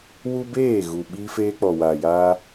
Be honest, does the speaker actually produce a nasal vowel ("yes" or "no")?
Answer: no